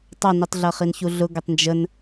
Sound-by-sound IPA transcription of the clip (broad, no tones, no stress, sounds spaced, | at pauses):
tˤ ɑ n i tˤ ɮ ʌ χ i n ç u ɮ ʊ ɡ ə tˤ n d͡ʒ ə n